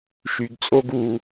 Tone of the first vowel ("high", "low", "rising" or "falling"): low